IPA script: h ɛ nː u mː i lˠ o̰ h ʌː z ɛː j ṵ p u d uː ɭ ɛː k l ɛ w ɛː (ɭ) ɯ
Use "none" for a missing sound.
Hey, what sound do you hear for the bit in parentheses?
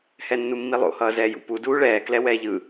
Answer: ʎ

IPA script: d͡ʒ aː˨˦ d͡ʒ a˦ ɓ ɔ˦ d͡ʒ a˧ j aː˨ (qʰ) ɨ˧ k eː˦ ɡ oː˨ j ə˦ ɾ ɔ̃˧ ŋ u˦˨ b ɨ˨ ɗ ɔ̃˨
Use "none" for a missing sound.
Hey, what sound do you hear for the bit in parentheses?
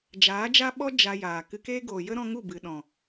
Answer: k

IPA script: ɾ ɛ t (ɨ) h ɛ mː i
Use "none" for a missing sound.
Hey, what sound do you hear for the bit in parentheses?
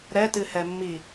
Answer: ɨ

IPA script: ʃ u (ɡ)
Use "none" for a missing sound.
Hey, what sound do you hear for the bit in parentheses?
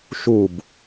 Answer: b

